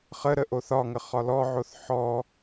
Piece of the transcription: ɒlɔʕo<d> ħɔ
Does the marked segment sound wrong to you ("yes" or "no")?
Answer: yes